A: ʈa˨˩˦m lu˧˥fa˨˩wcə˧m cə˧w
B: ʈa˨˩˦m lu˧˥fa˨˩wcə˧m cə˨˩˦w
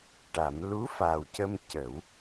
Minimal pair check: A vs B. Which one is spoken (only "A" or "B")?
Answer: B